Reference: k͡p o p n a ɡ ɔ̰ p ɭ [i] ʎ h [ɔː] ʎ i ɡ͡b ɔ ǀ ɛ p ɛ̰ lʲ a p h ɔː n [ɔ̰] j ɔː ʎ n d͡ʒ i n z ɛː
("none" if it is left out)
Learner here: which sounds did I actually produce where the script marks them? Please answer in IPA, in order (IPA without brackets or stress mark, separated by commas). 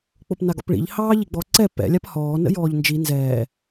ḭ, ɑː, ə̰